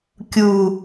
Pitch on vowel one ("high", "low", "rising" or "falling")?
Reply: low